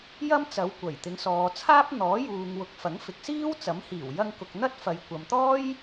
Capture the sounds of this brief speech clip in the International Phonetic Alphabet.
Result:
j ɐ˥ m t͡s ɐ˨˧ w kʷ ɐ˨˩ j t̪ ɪ˨˧ ŋ s ɔː˨ t͡sʰ aː˥ p̚ n̪ ɔː˨˥ j uː˨ ŋ w ʊ˨˥ k̚ f ɐ˨˥ ŋ f ɪ˨˥ k̚ s iː˥ w t͡s ɐ˨˥ m h iː˨˩ w j ɐ˧ ŋ k ʊ˨ k̚ n̪ ɐ˥ t̚ f ɐ˨˧ j kʷ ɐ˨ m t̪ ɔː˥ j

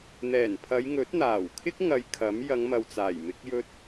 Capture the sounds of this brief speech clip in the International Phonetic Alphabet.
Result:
n̪ ɛː˨˩ n pʰ ɐ˨˧ j ŋ ɵ˨˥ t̚ n̪ aː˨˩ w kʰ ɪ˥ k̚ ŋ ɐ˧ j kʰ ɐ˨˥ m j ɐ˨˧ ŋ m ɐ˨ w t͡s aː˨˩ j m ɪ˨˥ k̚ j ɵ˥ t̚

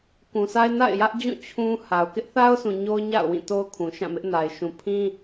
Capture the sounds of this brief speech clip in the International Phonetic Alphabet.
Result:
k ũ˨ sʰ a˦ ɪ̯ n a̰˦˨ ɪ̯ j ä˦ ʔ d͡ʑ ũ˦˨ t͡ɕʰ ũ˦ h a˨ ʊ̯ k ɪ˦ ʔ θ a˦ ʊ̯ sʰ ũ˨ ɲ o˦ ʊ̯ ɲ a̰˦˨ ʊ̯ w ĩ˦˨ t o˦ ʊ̯ kʰ ũ˨ ʃ ã˦˨ m ɪ˦ ʔ n a˨ ɪ̯ ʃ ũ˨ pʰ ĩ˦

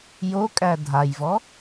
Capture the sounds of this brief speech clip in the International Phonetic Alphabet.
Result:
j o kʼ æ dʱ a j v ɔ

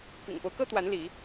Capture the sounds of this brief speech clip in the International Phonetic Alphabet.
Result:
p ḭ˨˩ ŋ p o˦ ʊ̯ k ɤ˦ t̪ w a˨˦ n l i˨˦

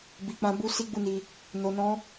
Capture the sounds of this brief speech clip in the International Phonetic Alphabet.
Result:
b i˨ k͡p ã˧ b u˦ s i˦ ɡ͡b u˦˨ n i˧ | n o˧ n ɔ̃˦

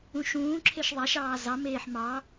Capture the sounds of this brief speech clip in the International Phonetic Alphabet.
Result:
ũ ʃ ũː ǁʰ e ʃ ðˤ a ʃ ɑː z ɑ m eː ħ m ɑ

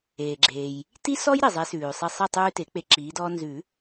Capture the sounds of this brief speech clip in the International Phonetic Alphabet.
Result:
eː˩ ɡ͡ǁ eː˩ j | t i˦ s ɔ˦ j ɾ i˩ zˤ e˨˦ s ʉː˩ sˤ i˧˩ sˤ i˥˨ tˤ ʉː˦ t e˨˩˦ k͡p e˧˩ ǁ iː˨˦ d ɔː˦ n z ʉ˨˩˦

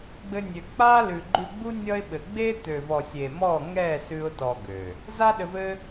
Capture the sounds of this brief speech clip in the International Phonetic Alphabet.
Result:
ɡ͡b ɘ˦ nʲ ø˧ k͡p a˦ l ʉ˨ ɡ͡ǃ ʉ˧ ɡ͡b u˦ nʲ ʌ˦ ɪ̯ ɓ ɘ˨ ɡ͡b e˦ t̪ ø˨ v ɔ˨ sʲ e˨ m ɔ˦˨ ŋ ɛ˦˨ s ʉ˦ ʊ̯ t ɔ˧ ɡ ø˨ | z a˦ ɗ ɘ˧ v ɘ˦

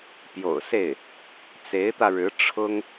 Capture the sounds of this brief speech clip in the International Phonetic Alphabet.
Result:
p j o̰˨˩ ʊ̯ s e˥˩ ɪ̯ | t͡s e˧˥ ɪ̯ t̪ ä˧ ɻ ɻ̩˧˥ ʈ͡ʂʰ ʊ˥ ŋ

